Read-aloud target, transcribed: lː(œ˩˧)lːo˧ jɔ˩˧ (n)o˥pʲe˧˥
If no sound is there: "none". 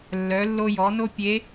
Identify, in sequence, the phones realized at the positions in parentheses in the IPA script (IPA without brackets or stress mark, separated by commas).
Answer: œ˩˧, n